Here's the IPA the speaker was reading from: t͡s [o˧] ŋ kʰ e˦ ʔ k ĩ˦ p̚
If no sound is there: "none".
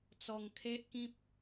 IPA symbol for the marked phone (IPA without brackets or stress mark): ɔ˧